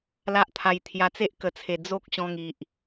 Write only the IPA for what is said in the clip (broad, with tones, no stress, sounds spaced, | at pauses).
l a˦ ʔ t̪ʰ a˧ j t̪ʰ j a˧ t͡s e˦ ʔ k ə˨˩ t͡sʰ e˨˩ d͡z o˦ k̚ ɕ ɔ̃˧ ŋ i˨ ʔ